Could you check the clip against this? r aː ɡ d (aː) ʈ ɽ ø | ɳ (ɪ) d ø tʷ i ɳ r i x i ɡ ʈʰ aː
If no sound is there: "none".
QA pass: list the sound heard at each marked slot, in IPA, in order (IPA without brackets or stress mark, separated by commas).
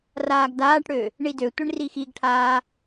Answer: aː, i